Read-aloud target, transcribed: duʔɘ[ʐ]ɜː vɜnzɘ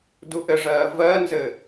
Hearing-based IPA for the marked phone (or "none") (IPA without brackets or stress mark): ʐ